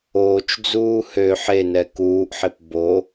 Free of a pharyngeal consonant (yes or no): no